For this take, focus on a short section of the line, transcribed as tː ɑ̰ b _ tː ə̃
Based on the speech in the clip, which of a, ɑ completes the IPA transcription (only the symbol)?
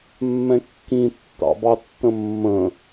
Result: ɑ